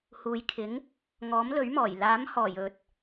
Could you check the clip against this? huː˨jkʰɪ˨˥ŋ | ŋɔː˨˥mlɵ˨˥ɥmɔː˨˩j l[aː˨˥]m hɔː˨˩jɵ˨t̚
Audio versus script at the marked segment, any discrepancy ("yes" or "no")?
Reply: no